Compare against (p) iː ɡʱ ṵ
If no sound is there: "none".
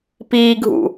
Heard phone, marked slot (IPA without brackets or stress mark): p